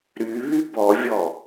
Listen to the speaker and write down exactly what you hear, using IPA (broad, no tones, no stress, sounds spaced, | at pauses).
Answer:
ɾ y β y b ɔ vʲ ɔ